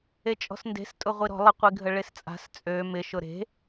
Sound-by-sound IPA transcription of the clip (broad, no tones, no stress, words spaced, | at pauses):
et͡ʃʼɔ̤snde̤stʼʊ ʁʷiɾɔ̤ lˠə qʷiɡʱəɭest͡sʼa̤s t͡sʼø mɪʃʊ ɾe̤